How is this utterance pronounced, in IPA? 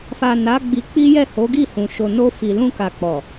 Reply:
f a˨ n a˨˦ ɡ͡b i˧ k͡p i˦ j ɛ˦˨ h o˨˦ ɡ i˦˨ h ũ˨ ʃ o˨ n o˧ f i˨ l ũ˧ k a˨ k͡p ɔ˨

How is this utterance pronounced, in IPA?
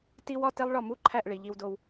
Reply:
t i˥ w ɒ˥ t e˥ lˠ ɭ ɒ˥˩ m u˥ ǃʰ æ˥˩ ʔ ɭ i˩ ʎ i˧ w d o˧ w

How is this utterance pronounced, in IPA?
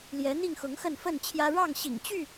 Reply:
l j ɛ˨˦ n̪ i˥˨ ŋ x ʊ˨˦ ŋ x ə˥˨ n f ə˥˨ n t͡ɕʰ j ä˦ ɻ ɑ˥˨ ŋ ɕ ḭ˨˩ ŋ t͡ɕ y˥˨

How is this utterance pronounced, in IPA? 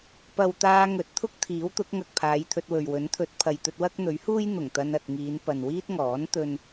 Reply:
p ɐ˨ w t̪ aː˧ ŋ ɵ˨˥ t̚ t̪ʰ ʊ˥ k̚ t̪ʰ iː˨˥ w t̪ ʊ˨˥ k̚ ŋ ɐ˨ k̚ pʰ aː˨˧ j t̪ʰ ɵ˧ t̚ w ɵ˨ ɥ w ɵ˨˥ n t̪ʰ ɵ˨˥ t̚ pʰ ɐ˨ j t̪ ɵ˧ t̚ w ɐ˥ k̚ n̪ ɵ˨˥ ɥ h uː˥ j n̪ ʊ˨˩ ŋ t̪ ɐ˧ n ɐ˨ t̚ ŋ iː˨˧ n p ɐ˨ n w iː˥ t̚ ŋ ɔː˨˥ n t̪ ɵ˥ n

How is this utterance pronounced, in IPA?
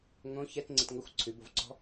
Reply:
ŋ õ ç ɛ t ŋ͡ǀ ɪ t ŋ ɤ xʷ ǀʰ ʉ b o v ǀ ɔ̤

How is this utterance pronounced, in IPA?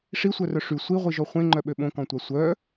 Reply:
ʂ i sʷ œ r œ ʂ y sʷ i ʁʷ i ʒ ɔ χʷ ẽ ŋ͡ǃ œ ɓ ø ɓ õ k ɔ̃ tʷ a sʷ œ

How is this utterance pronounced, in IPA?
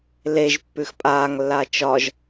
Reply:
l e ʒ pː ʉ x pʼ aː ŋ lː aː t͡ʃ ɒ ʒ

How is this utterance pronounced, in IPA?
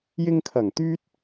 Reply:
j ɪ˧ ŋ kʰ ɐ˨˩ ŋ t̪ yː˥ t̚

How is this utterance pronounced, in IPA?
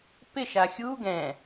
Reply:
p ɪ ʃ a xʲ u ɡ ɛ̃

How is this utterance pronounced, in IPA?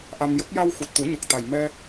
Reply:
ʔ a˧ m j ə˦˥ k̚ j a˧ w x u˨˩ t̚ t̪ u˨˩˦ ɲ ə˨˩ k̚ t̪ a˨˩ j m ɛ˧

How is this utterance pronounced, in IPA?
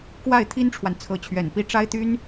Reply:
k w a˥˩ ɪ̯ t̪ʰ i˥ n ʈ͡ʂʰ w a˨ n t͡sʰ ɤ˧˥ t͡ɕʰ ɥ ɛ˨˩ n p i˥˩ ʈ͡ʂ a˥ ɪ̯ t̪ y˥ n

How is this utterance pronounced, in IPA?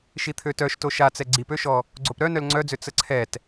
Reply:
ʃ i t̪ʰ ø t œ ʃ t o ʃ a t͡s ɛ ɡ͡ǀ i p ø ʃ ɔ | ɡ͡ǀ o p ɾ œ n œ l ŋ͡ǀ œ d͡z ø t͡s ə ǀʰ ɛ t

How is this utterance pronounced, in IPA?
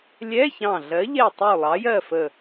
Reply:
lʲ ɛ˧˥˧ ç ɑ̃˧˩ ɮ ɜ˨˥ ʎ ɛ˥˨ tˤ u˥˨ lˠ ɑ˨˥ j ɜ˥˨ f ə˧˩

